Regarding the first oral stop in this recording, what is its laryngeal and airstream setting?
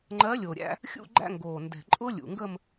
click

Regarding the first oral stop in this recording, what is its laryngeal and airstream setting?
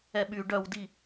implosive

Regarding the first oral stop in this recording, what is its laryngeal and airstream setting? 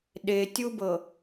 implosive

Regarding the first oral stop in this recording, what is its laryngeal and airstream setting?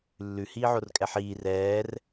ejective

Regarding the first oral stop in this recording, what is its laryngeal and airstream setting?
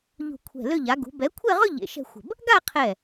aspirated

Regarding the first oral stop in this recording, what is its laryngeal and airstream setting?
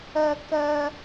plain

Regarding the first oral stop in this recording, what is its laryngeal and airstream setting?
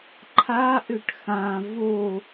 click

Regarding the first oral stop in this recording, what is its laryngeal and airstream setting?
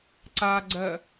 click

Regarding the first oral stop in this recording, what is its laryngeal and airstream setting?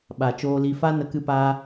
implosive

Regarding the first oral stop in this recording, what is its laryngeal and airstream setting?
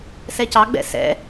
plain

